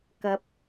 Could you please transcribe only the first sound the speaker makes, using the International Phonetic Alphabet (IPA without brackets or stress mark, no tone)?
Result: k